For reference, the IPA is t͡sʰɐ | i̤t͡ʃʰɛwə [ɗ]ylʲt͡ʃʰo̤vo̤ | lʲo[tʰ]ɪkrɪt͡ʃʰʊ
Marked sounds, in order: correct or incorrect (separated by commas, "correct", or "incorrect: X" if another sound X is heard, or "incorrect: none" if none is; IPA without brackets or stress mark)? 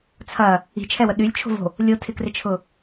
correct, correct